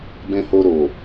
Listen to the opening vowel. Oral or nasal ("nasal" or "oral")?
nasal